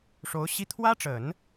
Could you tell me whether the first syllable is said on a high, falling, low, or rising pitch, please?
rising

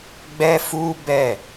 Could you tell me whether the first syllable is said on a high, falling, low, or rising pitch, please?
high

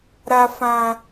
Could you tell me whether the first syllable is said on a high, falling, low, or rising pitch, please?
high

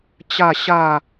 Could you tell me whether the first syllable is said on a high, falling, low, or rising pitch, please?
falling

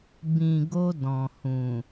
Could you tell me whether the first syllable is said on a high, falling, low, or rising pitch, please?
low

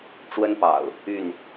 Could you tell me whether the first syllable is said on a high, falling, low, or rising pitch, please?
high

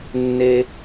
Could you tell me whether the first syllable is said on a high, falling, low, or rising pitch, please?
low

